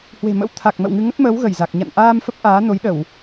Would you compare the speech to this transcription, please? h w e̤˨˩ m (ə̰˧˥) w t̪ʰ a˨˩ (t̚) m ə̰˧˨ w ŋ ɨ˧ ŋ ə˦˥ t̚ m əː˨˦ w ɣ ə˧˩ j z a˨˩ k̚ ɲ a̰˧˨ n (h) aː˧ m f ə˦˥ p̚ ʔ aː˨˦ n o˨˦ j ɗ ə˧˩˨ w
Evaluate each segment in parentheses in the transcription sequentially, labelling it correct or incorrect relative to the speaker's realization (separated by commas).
correct, incorrect, incorrect